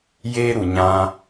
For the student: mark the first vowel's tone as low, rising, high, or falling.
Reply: high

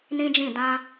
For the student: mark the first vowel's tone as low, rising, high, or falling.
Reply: high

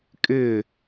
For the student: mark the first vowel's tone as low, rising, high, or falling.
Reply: falling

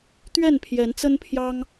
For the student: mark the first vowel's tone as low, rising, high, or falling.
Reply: falling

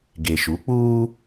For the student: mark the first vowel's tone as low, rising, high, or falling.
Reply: low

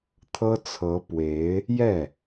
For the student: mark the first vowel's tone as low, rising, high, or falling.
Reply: high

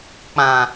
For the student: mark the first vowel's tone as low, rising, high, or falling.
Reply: low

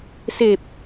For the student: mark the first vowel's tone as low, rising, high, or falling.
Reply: low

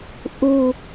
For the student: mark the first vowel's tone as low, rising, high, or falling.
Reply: low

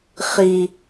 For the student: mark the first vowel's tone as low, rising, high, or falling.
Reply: low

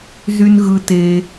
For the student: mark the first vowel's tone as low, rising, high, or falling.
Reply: high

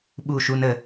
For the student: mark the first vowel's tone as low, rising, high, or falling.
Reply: falling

